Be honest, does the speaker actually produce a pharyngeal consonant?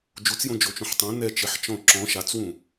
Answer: yes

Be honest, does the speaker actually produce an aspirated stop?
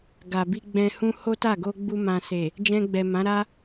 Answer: no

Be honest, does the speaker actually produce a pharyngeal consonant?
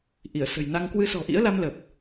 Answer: no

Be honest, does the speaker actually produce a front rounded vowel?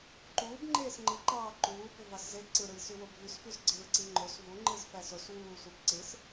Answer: yes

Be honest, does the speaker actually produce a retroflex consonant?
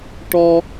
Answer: yes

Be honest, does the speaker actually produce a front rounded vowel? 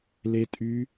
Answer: yes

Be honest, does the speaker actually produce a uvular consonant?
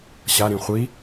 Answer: yes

